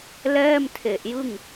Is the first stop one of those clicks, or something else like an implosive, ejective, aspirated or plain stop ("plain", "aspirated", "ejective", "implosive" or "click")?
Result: aspirated